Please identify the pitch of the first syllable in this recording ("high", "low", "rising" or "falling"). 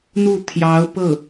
falling